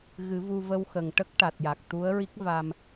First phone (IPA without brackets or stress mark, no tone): ɣ